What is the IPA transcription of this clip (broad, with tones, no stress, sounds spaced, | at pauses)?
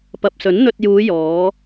p ɐ˨ p̚ s ɵ˨˥ n n̪ ɵ˧ t̚ j uː˨˧ j ɔː˨˧